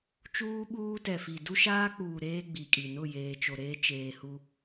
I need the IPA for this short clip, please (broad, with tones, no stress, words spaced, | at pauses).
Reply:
t͡ʃuː˦ɓuː˦tɛ˨fi˨ du˦ʃaː˦k͡puː˨ ɾeː˦ ɡ͡bi˨kʼi˨ nʊ˦˨ jeː˨t͡ʃo˨ɾeː˦ t͡ʃeː˨hu˦